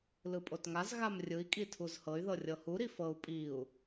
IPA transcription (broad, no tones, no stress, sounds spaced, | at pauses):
l ɯ pʼ o t ŋ a z ɣ a m rʲ ɯ i̯ kʼ i tʰ u z h ɤ y̯ ð ɤ rʲ ɤ h u ɾ i f ɤ u̯ pʼ i u̯